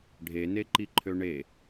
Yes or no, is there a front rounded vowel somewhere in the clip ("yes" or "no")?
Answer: yes